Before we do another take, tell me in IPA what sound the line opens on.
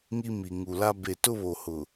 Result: ŋ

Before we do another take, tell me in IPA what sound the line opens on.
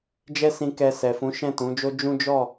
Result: d͡ʒ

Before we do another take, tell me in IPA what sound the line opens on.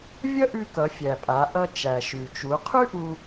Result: vʲ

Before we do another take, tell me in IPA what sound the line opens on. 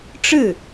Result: ʈ͡ʂ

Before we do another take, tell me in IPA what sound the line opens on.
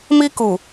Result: m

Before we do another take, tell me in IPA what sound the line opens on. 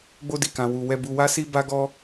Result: ɡ͡b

